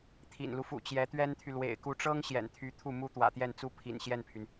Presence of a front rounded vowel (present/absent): present